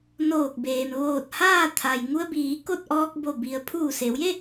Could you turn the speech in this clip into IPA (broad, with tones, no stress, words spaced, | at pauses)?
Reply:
noː˧˩k̚beː˩m ʋoː˧˩t̚haː˥˨ t̪ʰa˩j ŋu˧ə̯biː˩˧ ko˥˨t̚ʔɔː˧k̚bo˧˩ bi˩˧ə̯ pʰuː˧˩se˩˧wje˥˨